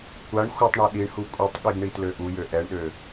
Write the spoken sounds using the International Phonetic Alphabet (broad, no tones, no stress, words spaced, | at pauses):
kʷaɳ xʷətˤɳa ɗiɳhu kʷʼitˤɠiɡ ɳitløʔujø ʔɛɳɗø